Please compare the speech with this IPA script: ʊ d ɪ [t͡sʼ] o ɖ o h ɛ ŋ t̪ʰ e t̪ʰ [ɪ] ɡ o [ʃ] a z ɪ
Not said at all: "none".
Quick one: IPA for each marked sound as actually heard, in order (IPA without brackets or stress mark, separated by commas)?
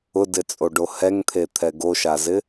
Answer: t͡sʼ, ɛ, ʃ